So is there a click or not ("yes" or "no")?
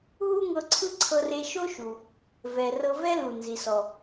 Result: yes